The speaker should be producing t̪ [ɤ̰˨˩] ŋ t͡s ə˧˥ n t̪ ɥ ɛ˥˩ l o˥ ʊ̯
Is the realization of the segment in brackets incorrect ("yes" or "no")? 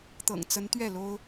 no